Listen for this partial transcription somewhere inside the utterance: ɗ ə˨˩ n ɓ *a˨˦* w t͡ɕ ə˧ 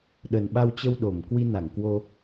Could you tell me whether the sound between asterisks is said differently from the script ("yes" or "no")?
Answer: yes